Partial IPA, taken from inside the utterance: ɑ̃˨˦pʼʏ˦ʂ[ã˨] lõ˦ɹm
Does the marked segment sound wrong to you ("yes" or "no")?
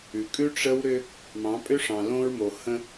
yes